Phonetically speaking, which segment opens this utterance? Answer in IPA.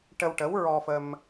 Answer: ʈ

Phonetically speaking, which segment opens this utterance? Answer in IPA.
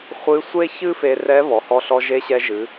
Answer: χʷ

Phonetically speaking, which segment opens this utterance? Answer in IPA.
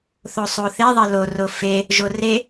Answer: θ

